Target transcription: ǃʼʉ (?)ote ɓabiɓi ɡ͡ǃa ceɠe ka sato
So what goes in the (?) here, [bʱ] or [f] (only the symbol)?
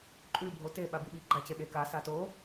bʱ